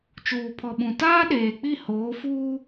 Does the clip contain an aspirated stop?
yes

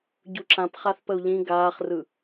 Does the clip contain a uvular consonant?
yes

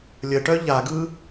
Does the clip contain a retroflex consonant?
yes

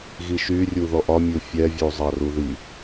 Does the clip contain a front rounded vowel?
yes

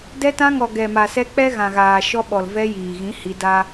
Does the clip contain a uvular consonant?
no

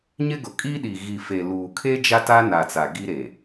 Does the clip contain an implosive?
yes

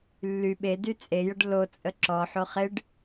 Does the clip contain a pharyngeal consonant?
yes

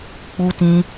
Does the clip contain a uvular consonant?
no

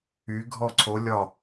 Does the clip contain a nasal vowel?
no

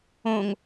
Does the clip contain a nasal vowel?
yes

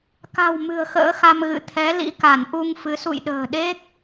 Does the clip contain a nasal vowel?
no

